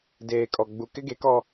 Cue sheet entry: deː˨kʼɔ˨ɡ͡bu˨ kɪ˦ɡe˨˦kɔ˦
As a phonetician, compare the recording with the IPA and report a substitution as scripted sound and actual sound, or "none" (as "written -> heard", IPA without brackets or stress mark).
none